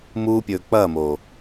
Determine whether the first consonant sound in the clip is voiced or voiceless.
voiced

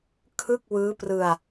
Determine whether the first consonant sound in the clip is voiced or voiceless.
voiceless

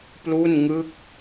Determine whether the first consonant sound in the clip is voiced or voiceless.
voiceless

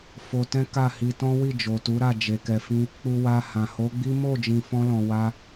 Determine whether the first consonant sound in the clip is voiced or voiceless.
voiceless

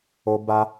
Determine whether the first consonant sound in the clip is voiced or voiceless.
voiced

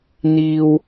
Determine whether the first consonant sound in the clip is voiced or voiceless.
voiced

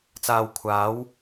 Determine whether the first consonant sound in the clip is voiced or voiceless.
voiceless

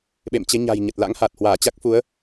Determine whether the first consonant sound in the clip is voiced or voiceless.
voiced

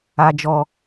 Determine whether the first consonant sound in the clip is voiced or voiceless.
voiced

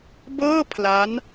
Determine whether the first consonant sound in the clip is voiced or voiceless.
voiced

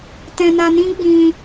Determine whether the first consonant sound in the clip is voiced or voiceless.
voiceless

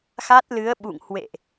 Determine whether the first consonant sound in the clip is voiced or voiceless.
voiceless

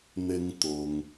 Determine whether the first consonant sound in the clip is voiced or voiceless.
voiced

